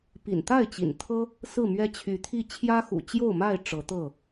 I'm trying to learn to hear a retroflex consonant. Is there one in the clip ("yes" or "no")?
yes